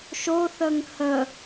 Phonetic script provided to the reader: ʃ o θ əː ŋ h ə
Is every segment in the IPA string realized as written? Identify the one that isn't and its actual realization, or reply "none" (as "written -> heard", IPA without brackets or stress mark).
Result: none